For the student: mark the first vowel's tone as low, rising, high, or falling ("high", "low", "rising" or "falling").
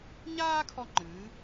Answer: high